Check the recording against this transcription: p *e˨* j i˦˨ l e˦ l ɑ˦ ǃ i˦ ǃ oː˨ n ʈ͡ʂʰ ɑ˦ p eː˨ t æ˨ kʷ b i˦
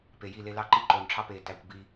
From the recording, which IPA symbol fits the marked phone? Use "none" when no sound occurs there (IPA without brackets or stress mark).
e˨